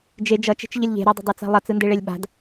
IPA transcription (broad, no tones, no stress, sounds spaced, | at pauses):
d͡ʒ e d͡ʒ ʌ t͡ʃ e̤ t͡ʃ ʎ ə lʲ ʎ e̤ ɾ ʌ dˤ ə̤ dˤ e t͡s a̤ lˠ ʌ t͡s ɯ n d e ɭ e lʲ ɓ a̤ d